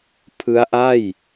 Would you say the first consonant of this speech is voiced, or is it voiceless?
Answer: voiceless